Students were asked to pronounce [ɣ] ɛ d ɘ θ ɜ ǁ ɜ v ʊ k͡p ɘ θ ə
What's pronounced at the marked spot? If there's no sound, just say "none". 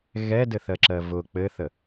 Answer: ɣ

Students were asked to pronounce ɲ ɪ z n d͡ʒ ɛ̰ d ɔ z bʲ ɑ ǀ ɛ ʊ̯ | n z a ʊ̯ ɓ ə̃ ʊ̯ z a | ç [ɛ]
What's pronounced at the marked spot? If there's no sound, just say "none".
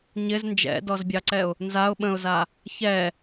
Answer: ɛ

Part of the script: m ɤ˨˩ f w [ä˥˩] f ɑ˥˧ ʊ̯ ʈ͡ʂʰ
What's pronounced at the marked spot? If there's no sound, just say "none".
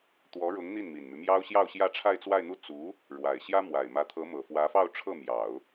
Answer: ä˧˥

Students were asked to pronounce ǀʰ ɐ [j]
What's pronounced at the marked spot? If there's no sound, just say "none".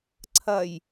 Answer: j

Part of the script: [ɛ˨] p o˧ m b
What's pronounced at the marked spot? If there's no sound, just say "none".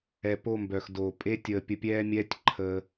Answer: ɛ˨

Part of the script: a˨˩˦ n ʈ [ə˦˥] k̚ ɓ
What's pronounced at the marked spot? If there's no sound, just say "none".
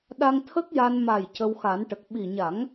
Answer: ə˨˩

